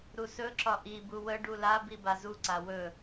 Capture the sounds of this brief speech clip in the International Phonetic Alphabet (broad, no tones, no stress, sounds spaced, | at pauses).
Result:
ɾ u s ɵ ǁ ɒ ʔ i b u w ə ɖ u l a b i b a z u ǀ a w ɵ